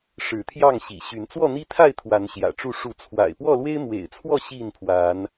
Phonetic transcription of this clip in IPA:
ʂ ɻ̩˨˦ t̪ʰ j ɑ˥˨ ŋ ɕ ḭ˨˩ ɕ y˨˦ n t͡s w ɔ˥˨ n̪ i˦ t̪ʰ a˥˨ ɪ̯ t̪ʰ w a˨˦ n ɕ j ä̰˨˩ ʈ͡ʂ u˥˨ ʂ u˨˦ t͡sʰ w a̰˨˩ ɪ̯ p w ɔ˥˨ l w e˦ ɪ̯ m w ḛ˨˩ ɪ̯ t͡sʰ w ɔ˥˨ ɕ i˥˨ n pʰ w a˨˦ n

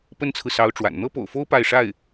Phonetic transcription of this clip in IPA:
p ə˥ n t͡sʰ ɹ̩˨ s ɑ˧˥ ʊ̯ ʈ͡ʂ w a̰˨˩ n n̪ ɤ˥ p o̰˨˩ ʊ̯ f o˥ ʊ̯ p a˥˧ ɪ̯ ʂ a˥˩ ɪ̯

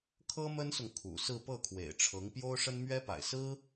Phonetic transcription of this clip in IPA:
kʰ ɤ˥ m ə˥ n s ʊ˨ ŋ kʰ ṵ˨˩ s ɹ̩˥˧ p ɤ˥˩ kʰ w ḛ˨˩ ɪ̯ ʈ͡ʂʰ ɤ˧˥ ŋ p j o˥ ʊ̯ ʂ ə˥ n m ɥ ɛ˥ p a̰˨˩ ɪ̯ s ɹ̩˥

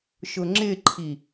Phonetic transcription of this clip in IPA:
ʃ ʊ ŋ͡ǁ ɪ ǃʰ i

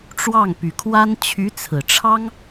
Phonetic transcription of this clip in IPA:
ʈ͡ʂ w ɑ˥˩ ŋ p y˨˩ kʰ w a˥ n t͡ɕʰ y˧˥ t͡sʰ ɹ̩˨˩ ʈ͡ʂʰ ɑ˥ ŋ

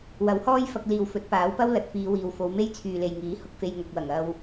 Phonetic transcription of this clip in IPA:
w ɐ˨˥ w h ɔː˥ j f ɐ˧ k̚ l iː˨ w f ɵ˨˥ t̚ p aː˨˥ w p ɐ˥ w l ɐ˨˥ t̚ f iː˨˧ w iː˨ w f o˨˧ w m e˥ j t͡sʰ yː˨ l e˨ j ŋ iː˨˥ h ʊ˨˥ k̚ f e˧ j ŋ ɐ˨ k̚ w ɐ˨˩ ŋ ɐ˧ w

